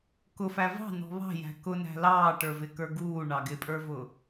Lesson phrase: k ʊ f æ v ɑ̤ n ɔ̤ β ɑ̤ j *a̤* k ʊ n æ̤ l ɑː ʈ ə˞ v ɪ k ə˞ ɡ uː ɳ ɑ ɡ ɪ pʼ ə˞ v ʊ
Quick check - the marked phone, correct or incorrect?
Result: incorrect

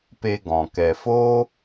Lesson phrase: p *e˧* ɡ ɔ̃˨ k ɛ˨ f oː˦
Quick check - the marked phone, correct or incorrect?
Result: correct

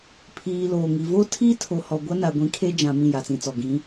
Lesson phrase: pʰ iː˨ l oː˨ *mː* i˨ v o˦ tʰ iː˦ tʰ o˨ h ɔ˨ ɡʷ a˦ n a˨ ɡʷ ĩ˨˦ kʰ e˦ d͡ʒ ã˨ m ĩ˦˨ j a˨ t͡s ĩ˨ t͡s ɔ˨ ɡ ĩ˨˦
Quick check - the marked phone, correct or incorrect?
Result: incorrect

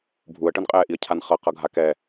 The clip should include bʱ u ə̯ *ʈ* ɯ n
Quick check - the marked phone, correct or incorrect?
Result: correct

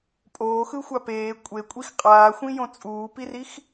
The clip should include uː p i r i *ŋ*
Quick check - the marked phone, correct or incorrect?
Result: incorrect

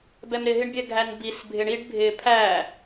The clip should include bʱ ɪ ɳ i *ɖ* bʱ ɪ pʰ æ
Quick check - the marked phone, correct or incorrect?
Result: correct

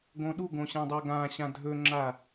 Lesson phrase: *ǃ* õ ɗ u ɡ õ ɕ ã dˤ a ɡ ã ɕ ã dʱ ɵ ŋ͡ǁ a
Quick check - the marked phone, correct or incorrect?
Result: incorrect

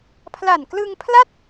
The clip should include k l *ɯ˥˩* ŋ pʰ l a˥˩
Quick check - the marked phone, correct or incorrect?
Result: incorrect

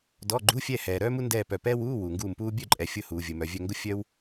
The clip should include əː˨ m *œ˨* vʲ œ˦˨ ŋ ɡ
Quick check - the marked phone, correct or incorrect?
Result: correct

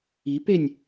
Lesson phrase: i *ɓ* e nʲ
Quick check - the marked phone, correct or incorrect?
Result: incorrect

